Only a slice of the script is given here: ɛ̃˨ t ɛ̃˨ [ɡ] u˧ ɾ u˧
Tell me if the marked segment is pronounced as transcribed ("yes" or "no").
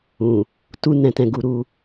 yes